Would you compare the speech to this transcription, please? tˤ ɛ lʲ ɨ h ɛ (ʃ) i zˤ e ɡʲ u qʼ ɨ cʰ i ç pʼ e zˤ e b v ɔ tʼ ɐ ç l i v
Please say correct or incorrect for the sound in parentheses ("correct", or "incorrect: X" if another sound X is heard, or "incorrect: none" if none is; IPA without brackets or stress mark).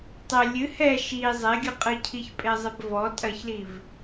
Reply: correct